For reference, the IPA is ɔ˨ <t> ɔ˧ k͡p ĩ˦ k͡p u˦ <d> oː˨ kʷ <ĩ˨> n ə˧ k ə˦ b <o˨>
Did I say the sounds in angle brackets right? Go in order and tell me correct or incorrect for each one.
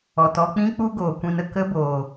correct, incorrect, incorrect, incorrect

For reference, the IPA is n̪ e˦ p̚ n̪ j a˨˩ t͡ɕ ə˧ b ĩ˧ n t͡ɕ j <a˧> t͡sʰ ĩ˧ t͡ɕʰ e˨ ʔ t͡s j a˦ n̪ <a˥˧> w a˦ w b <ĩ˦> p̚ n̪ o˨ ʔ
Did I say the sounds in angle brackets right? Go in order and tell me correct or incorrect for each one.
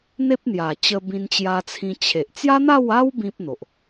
correct, correct, correct

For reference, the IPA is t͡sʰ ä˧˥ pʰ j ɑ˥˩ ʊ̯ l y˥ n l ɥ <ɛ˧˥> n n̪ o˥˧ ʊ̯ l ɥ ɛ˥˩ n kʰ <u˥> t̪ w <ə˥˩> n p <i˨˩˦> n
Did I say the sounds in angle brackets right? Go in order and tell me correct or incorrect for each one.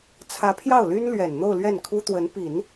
incorrect, correct, incorrect, correct

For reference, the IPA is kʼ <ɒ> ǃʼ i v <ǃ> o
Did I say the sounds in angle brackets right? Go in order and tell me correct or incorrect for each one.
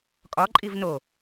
correct, incorrect

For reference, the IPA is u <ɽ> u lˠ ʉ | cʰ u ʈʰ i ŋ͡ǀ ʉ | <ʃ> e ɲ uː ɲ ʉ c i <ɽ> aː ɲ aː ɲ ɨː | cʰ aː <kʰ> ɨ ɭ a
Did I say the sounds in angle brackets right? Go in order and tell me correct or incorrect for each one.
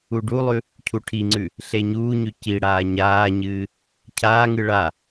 incorrect, incorrect, correct, incorrect

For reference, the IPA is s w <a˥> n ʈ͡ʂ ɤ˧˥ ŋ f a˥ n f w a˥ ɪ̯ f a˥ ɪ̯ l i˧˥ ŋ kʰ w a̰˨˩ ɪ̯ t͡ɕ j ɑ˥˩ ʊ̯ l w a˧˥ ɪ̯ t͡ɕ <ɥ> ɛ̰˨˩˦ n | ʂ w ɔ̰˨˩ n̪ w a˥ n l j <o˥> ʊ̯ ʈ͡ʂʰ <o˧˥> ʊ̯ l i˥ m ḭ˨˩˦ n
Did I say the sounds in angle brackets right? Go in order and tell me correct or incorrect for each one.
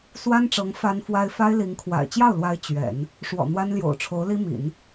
correct, correct, incorrect, correct

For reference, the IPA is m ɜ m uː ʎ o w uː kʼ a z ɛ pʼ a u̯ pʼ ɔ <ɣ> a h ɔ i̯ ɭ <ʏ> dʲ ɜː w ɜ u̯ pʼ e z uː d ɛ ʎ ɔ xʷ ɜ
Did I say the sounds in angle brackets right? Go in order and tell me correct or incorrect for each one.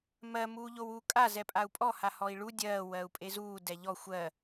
incorrect, incorrect

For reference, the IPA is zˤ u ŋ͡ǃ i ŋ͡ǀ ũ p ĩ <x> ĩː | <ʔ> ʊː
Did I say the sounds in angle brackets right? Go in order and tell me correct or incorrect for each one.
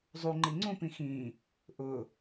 correct, correct

